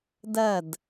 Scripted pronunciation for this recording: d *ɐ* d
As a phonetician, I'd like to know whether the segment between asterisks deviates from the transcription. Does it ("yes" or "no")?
no